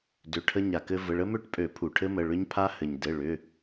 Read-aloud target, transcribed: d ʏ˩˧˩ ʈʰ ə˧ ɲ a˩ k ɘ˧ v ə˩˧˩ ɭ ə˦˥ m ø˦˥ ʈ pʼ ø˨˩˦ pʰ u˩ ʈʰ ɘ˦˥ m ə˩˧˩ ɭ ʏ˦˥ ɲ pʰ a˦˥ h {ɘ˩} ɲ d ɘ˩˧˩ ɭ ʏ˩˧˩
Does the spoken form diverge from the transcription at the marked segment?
no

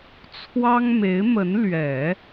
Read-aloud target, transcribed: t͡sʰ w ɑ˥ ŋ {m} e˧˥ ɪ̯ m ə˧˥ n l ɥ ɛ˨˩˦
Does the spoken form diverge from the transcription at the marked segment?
no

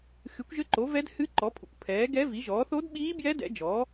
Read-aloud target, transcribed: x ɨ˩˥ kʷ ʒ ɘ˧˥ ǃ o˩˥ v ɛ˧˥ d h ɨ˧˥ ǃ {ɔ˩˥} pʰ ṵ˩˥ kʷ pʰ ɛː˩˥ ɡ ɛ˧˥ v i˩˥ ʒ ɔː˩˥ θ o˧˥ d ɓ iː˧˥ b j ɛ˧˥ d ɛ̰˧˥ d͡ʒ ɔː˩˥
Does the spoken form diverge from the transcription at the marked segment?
no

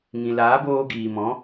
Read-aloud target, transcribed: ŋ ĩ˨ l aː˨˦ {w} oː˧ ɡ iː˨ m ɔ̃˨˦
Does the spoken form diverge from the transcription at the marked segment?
yes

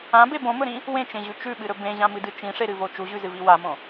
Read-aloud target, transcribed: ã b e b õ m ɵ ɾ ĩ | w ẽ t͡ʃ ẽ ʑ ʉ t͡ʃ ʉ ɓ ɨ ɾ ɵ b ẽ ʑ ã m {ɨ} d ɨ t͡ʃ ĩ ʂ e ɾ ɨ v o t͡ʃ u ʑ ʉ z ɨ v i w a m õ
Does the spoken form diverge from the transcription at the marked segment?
no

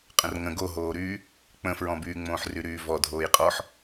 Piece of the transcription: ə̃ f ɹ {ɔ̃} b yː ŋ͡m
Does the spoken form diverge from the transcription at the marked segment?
no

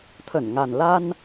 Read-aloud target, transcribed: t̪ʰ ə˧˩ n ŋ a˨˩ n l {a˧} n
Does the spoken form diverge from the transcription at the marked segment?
no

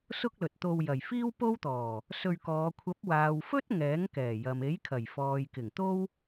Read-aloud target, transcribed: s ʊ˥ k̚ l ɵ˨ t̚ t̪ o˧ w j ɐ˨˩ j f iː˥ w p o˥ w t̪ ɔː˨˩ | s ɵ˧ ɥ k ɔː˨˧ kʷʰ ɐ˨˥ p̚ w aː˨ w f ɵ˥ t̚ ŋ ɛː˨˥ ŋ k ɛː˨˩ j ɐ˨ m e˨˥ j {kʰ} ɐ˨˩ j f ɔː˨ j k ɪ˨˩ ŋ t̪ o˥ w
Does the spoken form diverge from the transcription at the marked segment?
no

